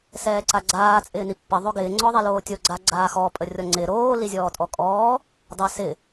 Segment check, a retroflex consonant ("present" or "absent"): absent